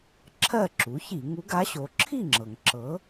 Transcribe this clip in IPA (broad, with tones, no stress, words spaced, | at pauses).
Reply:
ǁʰɜ˥˨ǁu˩˥çi˧˩˧ ŋu˧˥ɡa˧˥ɕo˩˥ ǁʰi˥˨ŋ͡ǁɤ˩ŋ ǁɤ˩˥